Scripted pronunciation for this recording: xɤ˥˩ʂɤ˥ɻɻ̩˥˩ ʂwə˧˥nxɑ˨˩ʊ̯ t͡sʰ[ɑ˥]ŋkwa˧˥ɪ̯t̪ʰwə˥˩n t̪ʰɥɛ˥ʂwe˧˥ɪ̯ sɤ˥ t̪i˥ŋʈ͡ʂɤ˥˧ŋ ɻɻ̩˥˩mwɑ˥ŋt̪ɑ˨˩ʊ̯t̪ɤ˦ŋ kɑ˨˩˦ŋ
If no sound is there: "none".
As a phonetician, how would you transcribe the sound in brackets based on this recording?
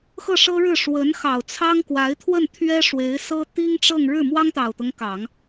ɑ˥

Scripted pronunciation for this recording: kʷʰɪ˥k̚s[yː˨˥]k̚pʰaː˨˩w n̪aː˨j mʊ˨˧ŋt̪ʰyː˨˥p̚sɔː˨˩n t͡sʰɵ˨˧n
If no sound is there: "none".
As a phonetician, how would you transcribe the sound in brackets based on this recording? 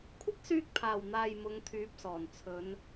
yː˧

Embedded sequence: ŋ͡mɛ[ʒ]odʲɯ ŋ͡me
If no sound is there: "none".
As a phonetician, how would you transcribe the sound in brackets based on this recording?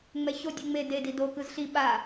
ç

